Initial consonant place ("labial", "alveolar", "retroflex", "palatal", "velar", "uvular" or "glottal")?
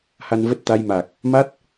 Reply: glottal